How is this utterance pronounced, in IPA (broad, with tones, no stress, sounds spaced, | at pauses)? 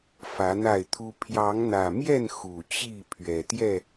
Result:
f ä˨˦ n̪ a˥˨ ɪ̯ t̪ʰ u˦ pʰ j ɑ˨˦ ŋ n̪ ä˨˩ m j ɛ˥˨ n x u˨˩ t͡ɕ i˥˨ pʰ ɥ ɛ˨˩ t̪ j ɛ˥˨